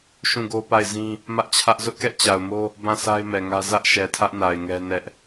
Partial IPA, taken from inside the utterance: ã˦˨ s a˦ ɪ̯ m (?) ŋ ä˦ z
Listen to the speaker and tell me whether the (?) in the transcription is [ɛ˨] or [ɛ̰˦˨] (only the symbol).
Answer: ɛ˨